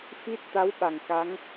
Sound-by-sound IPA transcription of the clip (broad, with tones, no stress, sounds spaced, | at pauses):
f i˦˥ t̚ t̪ a˧˥ w ɓ a˨˩ ŋ k a˧˥ ŋ